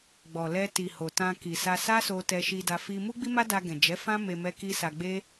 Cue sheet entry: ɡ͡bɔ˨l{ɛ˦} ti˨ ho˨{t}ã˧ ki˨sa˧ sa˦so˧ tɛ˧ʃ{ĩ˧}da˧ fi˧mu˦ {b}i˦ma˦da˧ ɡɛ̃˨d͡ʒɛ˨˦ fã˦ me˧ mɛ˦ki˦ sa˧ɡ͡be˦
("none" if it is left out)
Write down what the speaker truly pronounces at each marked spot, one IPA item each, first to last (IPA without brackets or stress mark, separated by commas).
ɛ˧, t, i˧, ɡ͡b